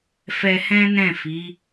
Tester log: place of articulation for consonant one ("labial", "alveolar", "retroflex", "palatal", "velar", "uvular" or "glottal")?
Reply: labial